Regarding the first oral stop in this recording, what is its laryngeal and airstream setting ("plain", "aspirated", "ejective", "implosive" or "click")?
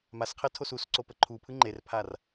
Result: aspirated